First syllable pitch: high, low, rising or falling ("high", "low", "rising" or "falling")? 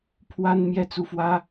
high